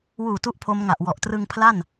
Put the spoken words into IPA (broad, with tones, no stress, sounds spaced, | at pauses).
w uː˨˩ t u˥˩ ʔ pʰ o˦˥ m ŋ a˨˩ ʔ w ɔ˨˩ ʔ t r ɯ˧ ŋ pʰ l a˥˩ n